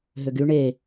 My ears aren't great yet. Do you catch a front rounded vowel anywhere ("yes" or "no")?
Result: yes